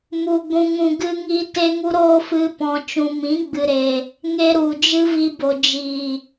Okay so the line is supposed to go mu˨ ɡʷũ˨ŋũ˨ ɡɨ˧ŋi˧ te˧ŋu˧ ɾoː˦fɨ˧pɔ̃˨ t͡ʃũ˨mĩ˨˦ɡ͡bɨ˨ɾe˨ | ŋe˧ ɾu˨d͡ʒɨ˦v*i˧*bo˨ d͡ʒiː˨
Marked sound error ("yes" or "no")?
no